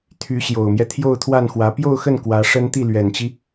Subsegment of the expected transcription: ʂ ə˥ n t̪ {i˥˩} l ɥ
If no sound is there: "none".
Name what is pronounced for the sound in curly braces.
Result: i˥˩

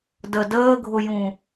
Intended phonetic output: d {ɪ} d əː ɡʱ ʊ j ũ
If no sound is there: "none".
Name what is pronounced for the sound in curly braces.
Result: ə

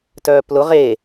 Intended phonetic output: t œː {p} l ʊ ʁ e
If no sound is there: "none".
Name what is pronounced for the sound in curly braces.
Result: p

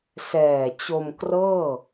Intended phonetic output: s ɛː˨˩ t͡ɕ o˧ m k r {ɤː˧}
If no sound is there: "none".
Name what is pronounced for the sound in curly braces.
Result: ɤː˥˩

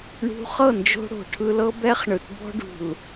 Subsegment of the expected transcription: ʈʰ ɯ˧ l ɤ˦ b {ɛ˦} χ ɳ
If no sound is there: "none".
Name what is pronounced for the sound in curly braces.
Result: ɛ˦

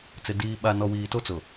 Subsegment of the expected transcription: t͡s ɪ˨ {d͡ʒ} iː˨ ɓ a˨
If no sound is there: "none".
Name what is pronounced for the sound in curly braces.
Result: d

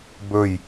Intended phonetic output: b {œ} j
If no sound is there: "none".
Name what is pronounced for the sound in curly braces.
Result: ɵ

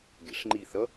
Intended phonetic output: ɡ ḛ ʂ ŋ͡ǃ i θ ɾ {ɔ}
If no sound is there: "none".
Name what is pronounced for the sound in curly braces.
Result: ʌ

